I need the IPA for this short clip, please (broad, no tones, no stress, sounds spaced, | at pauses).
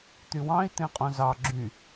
t̪ y w ɑ̃ i̯ t̪ ẽ qʼ õ z ɑ ɡ͡ǁ y